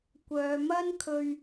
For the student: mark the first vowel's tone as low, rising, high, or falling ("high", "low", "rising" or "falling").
low